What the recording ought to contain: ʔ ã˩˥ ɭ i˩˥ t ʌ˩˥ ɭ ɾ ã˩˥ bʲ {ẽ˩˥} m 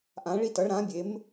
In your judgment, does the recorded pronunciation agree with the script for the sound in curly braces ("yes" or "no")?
no